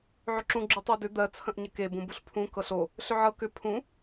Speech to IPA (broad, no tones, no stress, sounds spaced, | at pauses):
ʕ ʏ ǁ ũ ɡ͡ǁ ʉ tˤ ɤ d ʏ d̪ ɜ t͡sʰ ə̃ ʔ ɲ ə k e b ũ b u ɬ pʰ ũ k ɤ ɬ o | ɬ ʏ ʕ ɤ k ʏ pʰ ũ